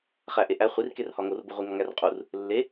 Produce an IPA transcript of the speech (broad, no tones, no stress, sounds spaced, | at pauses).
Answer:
χ æ ʔ e ʔ æ χʷ i r k e r h ɒ ŋ o r b u ʁʷ i ŋ ɒ ŋ æ r qʼ u r | lː e